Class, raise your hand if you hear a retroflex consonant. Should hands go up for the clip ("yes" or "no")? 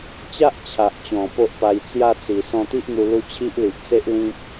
no